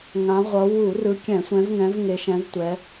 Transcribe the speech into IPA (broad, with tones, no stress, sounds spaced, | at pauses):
ŋ ã˨˦ ʁʷ ʌ˨˦ w u˧˩˧ r ɯ˨˦ kʲ ɛ̃˧˩˧ sʷ ɛ̃˨˦ v ŋ ɛ̃˨˦ v ŋ e˨˦ ʃ ɛ̃˨˦ v tʷ ɛ˨˦